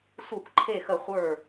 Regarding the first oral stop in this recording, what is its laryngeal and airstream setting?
plain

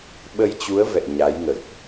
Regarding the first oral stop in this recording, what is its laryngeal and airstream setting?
implosive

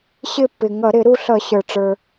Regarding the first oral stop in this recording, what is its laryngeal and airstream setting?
plain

